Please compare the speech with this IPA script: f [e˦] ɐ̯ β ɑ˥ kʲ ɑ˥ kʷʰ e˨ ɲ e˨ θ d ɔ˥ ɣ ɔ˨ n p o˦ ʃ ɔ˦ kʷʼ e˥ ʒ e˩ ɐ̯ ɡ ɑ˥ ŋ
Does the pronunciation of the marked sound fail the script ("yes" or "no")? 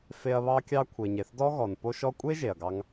no